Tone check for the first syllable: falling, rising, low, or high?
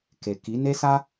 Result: low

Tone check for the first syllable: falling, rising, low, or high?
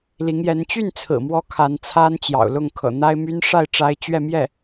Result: rising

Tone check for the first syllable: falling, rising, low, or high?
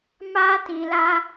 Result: high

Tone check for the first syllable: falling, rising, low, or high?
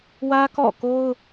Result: high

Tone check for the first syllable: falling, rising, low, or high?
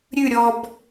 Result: falling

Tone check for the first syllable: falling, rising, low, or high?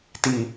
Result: low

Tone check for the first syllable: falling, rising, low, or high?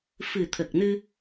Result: low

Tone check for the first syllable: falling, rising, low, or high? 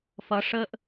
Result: rising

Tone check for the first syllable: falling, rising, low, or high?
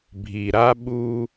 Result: low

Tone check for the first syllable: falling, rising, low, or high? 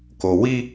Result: low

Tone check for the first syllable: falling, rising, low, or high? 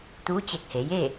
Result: rising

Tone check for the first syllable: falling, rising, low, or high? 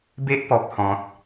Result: high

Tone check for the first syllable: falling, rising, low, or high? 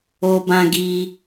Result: high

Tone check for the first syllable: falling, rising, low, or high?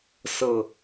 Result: low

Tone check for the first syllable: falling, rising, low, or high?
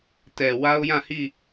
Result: low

